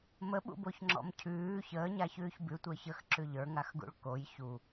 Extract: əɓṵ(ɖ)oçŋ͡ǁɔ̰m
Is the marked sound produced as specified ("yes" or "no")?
no